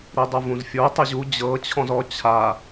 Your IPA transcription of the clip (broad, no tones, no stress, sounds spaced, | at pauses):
ɾ i dˤ u v ũ z fʲ o tˤ ɯ ʑ u d͡ʑ ɤ t͡ɕʰ ɔ̃ z ɔ t͡ɕʰ a